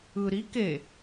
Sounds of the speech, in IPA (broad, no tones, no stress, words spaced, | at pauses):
ɯ ɾi ke